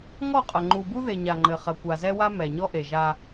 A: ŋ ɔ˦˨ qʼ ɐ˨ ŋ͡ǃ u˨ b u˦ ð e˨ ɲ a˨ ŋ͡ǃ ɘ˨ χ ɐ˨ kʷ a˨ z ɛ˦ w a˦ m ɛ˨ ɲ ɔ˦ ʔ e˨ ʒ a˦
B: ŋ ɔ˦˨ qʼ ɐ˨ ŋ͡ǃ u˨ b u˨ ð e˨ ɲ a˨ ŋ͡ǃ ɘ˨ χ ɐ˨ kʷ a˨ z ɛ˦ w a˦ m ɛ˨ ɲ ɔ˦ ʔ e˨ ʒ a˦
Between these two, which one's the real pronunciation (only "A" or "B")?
A